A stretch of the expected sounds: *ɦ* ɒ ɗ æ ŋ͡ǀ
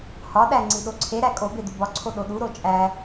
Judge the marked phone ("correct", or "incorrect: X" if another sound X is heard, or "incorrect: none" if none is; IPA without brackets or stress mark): incorrect: h